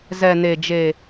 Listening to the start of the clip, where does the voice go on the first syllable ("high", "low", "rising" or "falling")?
low